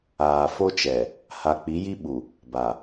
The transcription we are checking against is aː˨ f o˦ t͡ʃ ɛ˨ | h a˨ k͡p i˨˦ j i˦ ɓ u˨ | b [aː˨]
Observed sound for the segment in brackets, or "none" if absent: a˨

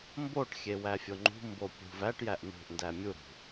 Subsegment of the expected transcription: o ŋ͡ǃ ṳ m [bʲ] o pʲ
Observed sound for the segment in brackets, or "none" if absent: b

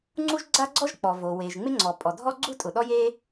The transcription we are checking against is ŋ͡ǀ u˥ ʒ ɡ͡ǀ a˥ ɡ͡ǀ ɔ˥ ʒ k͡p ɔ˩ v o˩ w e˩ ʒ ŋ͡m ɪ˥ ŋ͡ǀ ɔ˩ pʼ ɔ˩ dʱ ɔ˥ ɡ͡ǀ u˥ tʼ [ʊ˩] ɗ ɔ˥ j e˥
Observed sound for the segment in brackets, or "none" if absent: ʊ˩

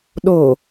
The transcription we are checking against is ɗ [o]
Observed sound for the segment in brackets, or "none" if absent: o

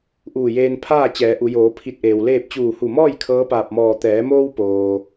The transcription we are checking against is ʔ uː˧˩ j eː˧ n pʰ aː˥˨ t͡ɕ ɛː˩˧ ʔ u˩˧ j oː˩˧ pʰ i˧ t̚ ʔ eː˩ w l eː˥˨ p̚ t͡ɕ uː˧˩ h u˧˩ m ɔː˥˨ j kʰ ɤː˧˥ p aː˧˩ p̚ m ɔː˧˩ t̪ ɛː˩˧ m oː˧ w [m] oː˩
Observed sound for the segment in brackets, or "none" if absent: p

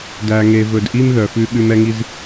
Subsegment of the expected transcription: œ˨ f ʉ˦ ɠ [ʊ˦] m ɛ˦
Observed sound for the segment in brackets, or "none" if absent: ʉ˦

